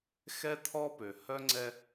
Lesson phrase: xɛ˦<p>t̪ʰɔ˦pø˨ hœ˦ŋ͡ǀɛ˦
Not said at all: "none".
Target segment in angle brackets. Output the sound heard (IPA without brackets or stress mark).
none